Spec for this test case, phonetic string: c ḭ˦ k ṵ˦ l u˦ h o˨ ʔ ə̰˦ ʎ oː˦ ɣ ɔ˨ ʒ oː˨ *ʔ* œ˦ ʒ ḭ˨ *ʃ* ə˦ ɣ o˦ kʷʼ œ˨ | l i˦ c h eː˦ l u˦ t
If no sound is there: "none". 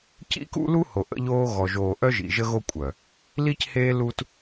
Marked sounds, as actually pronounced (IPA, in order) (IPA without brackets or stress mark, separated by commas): ʔ, ʒ